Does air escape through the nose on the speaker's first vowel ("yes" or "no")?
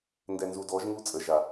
no